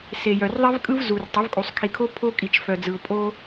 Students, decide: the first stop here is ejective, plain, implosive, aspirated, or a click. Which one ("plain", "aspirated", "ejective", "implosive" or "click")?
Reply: ejective